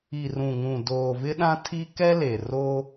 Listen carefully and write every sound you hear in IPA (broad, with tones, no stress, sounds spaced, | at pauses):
i˨ r ũ˨ ŋ ũ˨ d oː˨ v ɪ˦ ɗ ã˦ tʰ i˦ k ɛ˦ l e˨ r o˦